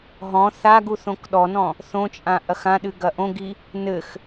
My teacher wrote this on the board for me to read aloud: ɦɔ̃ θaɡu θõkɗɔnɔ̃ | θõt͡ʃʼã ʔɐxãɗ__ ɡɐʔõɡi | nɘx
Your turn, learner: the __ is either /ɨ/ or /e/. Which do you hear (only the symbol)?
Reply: ɨ